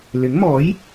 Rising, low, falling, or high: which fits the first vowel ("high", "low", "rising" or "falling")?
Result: rising